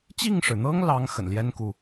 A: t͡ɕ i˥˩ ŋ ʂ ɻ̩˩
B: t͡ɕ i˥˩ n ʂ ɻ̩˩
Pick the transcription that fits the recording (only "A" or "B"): A